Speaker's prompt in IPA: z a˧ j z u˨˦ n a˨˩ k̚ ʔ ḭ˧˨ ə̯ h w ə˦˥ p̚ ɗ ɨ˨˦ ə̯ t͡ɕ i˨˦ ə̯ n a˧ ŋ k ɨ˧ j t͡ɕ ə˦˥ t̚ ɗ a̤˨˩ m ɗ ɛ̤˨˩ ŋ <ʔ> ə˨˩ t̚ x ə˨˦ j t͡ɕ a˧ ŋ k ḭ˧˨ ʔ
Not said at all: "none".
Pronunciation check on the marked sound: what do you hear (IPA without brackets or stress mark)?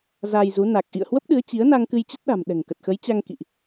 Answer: k